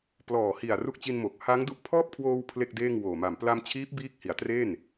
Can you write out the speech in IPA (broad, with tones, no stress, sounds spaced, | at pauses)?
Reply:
p l ɔː˨˩ h i˨˩ a̯ r u˦˥ k̚ t͡ɕ i˧ n m o˨˩ k̚ h a˦˥ ŋ d u˦˥ ʔ pʰ ɔː˥˩ p̚ kʰ w oː˧ w pʰ l e˥˩ k̚ d eː˥˩ ŋ w oː˨˩ m a˨˩ m p l a˧ m t͡ɕʰ iː˦˥ p̚ b iː˥˩ k̚ h i˩˦ a̯ t r e˥˩ n